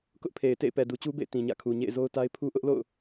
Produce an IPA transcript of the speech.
k ʊ˦ ʔ pʰ e˨ ɪ̯ t ḛ˦˨ ɪ̯ p ɛ˨ d u˨ t͡ɕ u˦ b ḛ˦˨ ɪ̯ t ĩ˨ ɲ ä̰˦˨ kʰ u˨ ɲ ḛ˦˨ ɪ̯ z o˦ ʊ̯ t a˦ ɪ̯ pʰ u˦ ʔ ʊ˦ ʔ l o̰˦˨ ʊ̯

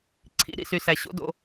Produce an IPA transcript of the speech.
ǀʰ ḭ˨˦ ɾ ḭ˧ s y˨ s æ˨ ɕ o̰˦ d o̰˧

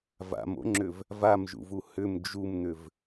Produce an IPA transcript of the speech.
v a̰ m o̰ ŋ͡ǁ ʏ v | v a m ʒ ṵ v u h ʏ m d͡ʒ u m n̪ ʏ v

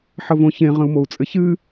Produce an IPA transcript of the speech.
ħ ə v õ ç ẽ ʁ ə̃ u̯ m o u̯ t͡sʼ ɘ ç ɨ

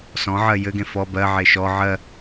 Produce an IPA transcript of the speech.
s ɔ̃ ʕ ɜ j ɘ ɡ ẽ f ɔ b ɜ ʕ e ʃ ɔ ʕ ɜ

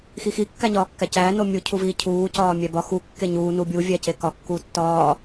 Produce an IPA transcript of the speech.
x i x i kː æ ɲ ɒː kː æ c æː n o mʲ u cʰ u v iː cʰ uː c ɒː mʲ æ b ɒ x u kː e ɲ uː n u bʲ u vʲ æ c e k ɒ kː uː tː ɒː

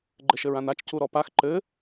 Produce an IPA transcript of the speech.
ɡ͡ǃ ɘ ʃ ɘ ɹ ã n a t͡ʃ c u ɾ ɔ p a x ǃ ɘ

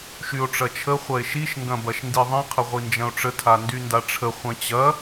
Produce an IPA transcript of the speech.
ʃ y o̯ ʈ͡ʂ ɐ t͡ʃʰ ə χʷ ɐ e̯ ʃ i ʃ ŋ ɡ ɐ̃ b ɐ ʃ n d i ðˤ ĩ qʰ ə ʁʷ i n d͡ʒ ɐ̃ o̯ ʈ͡ʂ ə tʰ a n d y n d a ʈ͡ʂʰ ə χʷ ɐ̃ t͡ɕ ɐ

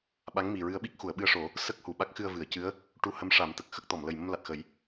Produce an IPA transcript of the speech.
ɓ a˧˥ ŋ m i˨˩ ɹ ɨ˧˥ ə̯ ɓ i˦˥ k̚ x u˨˩˨ ə̯ ɓ ɨ˧ ə̯ ʂ o˨˩˦ | s ə˦˥ k̚ h u˨˩ ɓ a˦˥ k̚ x ɨ˧ ə̯ v ɨ˨˩˨ ə̯ c ɨ˧˥ ə̯ | ʈ u˧ h ə˧˥ m ʂ a˨˩˦ m t̪ ə˨˩ k̚ x ə˦˥ k̚ t̪ ɔ˨˩˨ m l ə˨˩ j m ə˧ m l a˨˩ t̚ x ə˨˩˦ j

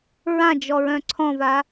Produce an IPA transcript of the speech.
ɹ ã d͡ʒ ɔ ɹ œ̃ ǀʰ ɔ̃ v a

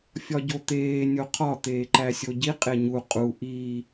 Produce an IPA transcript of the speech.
fʲ ɒ ɟ o t̪ eː nʲ o qʰ ɒ t̪ eː ǃ æ sʲ o ɟ i qʼ e ɲ u qʼ u ʔ iː

